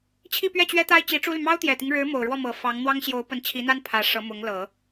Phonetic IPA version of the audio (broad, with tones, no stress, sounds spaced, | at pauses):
t͡ɕʰ i˥˧ p ɥ ɛ˥˩ t͡ɕ ɥ ɛ˥ t̪ a˥ ɪ̯ t͡ɕ i˧˥ ʈ͡ʂ u˥ l y˨ m ɑ˥ ʊ̯ t̪ j ɛ˨˩ t̪ i˦ ŋ ɻ ɻ̩˧˥ m o˨˩ ʊ̯ ɻ w ɔ˥˩ m ɤ˨˩ f ɑ˧˥ ŋ n̪ w ɑ˥ ŋ ɕ j o˧˥ ʊ̯ p ə˧˥ n t͡ɕʰ i˧˥ n̪ a˥ n pʰ ä˧˥ ʂ ɤ˧˥ m ʊ˧˥ ŋ l ɤ˨˩˦